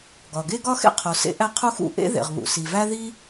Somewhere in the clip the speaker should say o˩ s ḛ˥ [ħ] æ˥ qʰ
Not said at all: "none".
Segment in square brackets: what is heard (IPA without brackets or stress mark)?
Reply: ʔ